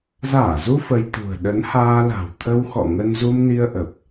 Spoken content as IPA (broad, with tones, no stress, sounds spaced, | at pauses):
z aː˧˩ z u˧ f ə˧ j t̪ ṳ˨˩ ə̯ ɗ ə˨˦ n h aː˧ l a̤˨˩ w t̪ʰ ə˧ w x ɔ̰˧˨ ŋ ə˧ n z u˧ m n i˧ ə̯ ʔ ə˨˩ p̚